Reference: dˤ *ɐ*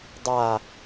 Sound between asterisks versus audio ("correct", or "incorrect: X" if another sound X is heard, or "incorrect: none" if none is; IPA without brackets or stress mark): incorrect: a